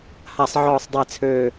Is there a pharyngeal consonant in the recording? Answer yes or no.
yes